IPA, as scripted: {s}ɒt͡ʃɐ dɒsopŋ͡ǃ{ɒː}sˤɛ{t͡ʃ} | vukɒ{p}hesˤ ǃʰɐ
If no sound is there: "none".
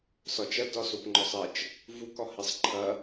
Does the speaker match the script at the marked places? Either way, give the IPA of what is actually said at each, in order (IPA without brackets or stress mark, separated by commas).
s, ɒ, t͡ʃ, none